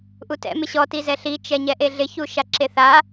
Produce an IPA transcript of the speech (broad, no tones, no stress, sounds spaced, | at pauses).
ʔ u t ɛ̰ m ɪ ɕ ɔ t i z ɛ ɬ i t͡ʃ ɛ ɲ ɛ ʔ e ɮ ɪ ç u ʃ a ǁ e θ a